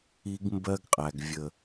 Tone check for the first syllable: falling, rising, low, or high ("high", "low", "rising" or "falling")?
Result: high